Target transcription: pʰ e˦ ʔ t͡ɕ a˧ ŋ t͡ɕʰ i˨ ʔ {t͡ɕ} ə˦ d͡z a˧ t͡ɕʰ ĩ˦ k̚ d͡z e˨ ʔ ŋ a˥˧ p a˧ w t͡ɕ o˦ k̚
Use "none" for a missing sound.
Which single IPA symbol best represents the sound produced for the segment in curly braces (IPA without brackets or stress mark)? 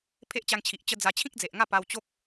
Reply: t͡ɕ